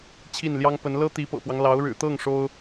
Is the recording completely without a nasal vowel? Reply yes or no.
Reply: yes